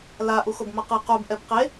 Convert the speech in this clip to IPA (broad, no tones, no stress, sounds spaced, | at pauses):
l a ʔ u x o b m ʌ q ɯ q u b ʔ ɛ b q e